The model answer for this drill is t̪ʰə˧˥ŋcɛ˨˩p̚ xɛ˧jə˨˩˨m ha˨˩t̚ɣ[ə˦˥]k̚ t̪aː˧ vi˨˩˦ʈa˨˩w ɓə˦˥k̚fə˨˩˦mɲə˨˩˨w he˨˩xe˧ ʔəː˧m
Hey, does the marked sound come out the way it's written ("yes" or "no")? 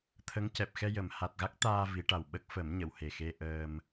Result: no